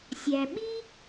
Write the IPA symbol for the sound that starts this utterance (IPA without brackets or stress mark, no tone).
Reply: sʲ